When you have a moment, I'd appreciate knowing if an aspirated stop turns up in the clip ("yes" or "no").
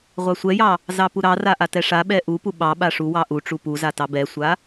no